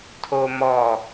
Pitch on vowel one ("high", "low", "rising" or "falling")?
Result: low